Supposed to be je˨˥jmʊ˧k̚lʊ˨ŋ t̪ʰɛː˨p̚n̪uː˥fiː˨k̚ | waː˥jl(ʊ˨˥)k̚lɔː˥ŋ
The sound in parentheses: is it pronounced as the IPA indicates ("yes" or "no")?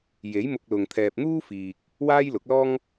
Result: yes